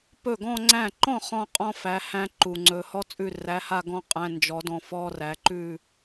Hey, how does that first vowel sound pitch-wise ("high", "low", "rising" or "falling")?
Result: falling